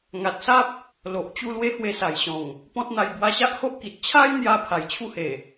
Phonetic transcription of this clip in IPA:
ŋ a˨ t̚ s a˦ p̚ | l o˨ ʔ t͡ɕ u˥˧ l w e˦ h w e˧ s a˨˩ j ɕ ɔ̃˨˩ ŋ | p ɔ̃˦ t̚ n̪ a˧ j b w a˧ ɕ a˦ ʔ h o˦ ʔ k i˨ t̚ t͡ɕʰ a˦ j n̪ j a˧ pʰ a˨˩ j t͡ɕʰ u˥˧ h e˨˩

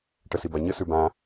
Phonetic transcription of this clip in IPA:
ʈ ə s i b a ɲ ə s ʉ b ã

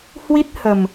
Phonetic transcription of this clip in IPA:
h w i˦˥ t̚ h ə˨˩ m

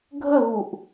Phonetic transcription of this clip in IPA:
ɡʱ ə ɣ u ʔ

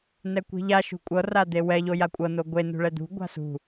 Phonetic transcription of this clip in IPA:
n ɛ kʷ i̤ ʎ a ʃ ṳ kʷʼ ɤ r a d̪ e w ɛ ʎ o j a kʷʼ ɤ n o ɡʷ e n ṳ ɭ ɛ d̪ ṳ ɡʷ a̤ s ṳ

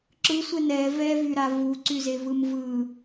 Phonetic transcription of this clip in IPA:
ǁ ɯ sʷ ɛ n ɛ v ɛ v y ɾ a v u ǀ y z e v ɯ m v ɯ

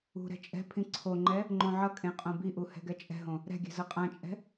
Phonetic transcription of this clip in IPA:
ṳ ɾ ɛ̤ t͡ʃʼ ɛ̤ pʰ ĩ ǀʰ o ŋ͡ǃ ɛ | ŋ͡ǃ õ ʕ ʌ kʼ ẽ qʼ õ b i ʔ u h ɛ̤ ɡ ɛ t͡ʃʼ ɛ̤ ɦ õ | ɾ ɛ̤ ɡʲ ɛ̤ z ʌ qʼ ã t͡ʃʼ ɛ̤

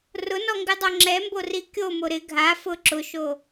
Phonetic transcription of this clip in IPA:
r ʊ n ɔ ŋ ɡ ɪ dˤ o ŋ͡ǁ ɛ m b o r i kʲ o m o ɾ ɪ ɡʱ a f ʊ ǁ ʊ ʃ o

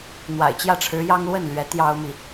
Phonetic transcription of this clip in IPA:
n̪ w a̰˨˩ ɪ̯ t͡ɕ j ä˥˩ ʈ͡ʂʰ ɻ̩˧˥ j ɑ˥ ŋ l w ə˥˩ n l ɥ ɛ˧˥ t̪ j ɑ˥ ʊ̯ m i˨

